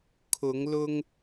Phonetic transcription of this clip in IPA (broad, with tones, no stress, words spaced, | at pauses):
kʰʊ˨˦ŋlʊ˦ŋ